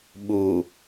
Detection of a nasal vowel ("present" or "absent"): absent